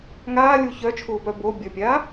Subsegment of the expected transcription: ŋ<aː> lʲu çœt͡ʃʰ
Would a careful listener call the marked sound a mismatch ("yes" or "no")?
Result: no